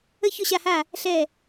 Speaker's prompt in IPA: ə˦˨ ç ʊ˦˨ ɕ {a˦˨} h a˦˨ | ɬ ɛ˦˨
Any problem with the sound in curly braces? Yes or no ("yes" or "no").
no